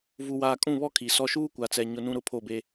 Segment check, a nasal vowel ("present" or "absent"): present